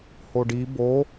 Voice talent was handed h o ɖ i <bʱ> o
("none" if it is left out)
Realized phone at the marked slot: b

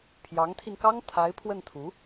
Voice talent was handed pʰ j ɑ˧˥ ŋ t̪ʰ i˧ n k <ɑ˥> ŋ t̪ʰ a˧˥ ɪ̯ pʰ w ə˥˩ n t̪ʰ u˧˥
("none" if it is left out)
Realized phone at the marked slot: ɑ˥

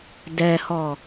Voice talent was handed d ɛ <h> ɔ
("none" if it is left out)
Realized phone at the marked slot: h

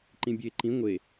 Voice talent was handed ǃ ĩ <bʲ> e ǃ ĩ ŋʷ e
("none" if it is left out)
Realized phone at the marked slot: bʲ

